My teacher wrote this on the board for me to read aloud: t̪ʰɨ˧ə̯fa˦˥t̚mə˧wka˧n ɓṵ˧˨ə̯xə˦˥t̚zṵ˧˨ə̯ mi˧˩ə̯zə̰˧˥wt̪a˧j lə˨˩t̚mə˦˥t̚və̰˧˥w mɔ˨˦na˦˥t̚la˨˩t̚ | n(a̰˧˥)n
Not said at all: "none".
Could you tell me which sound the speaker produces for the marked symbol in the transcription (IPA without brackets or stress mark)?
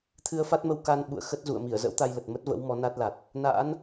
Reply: a̰˧˥